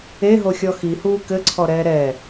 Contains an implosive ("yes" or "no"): no